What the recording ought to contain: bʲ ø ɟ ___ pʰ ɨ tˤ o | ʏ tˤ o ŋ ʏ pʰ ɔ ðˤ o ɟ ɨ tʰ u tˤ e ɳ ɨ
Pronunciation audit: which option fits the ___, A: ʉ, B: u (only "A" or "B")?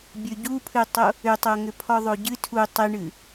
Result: B